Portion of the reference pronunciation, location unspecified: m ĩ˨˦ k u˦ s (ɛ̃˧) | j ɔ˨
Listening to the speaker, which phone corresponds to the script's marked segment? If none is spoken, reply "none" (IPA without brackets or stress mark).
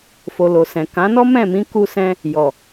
ɛ̃˦